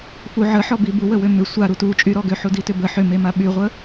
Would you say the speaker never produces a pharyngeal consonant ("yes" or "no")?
no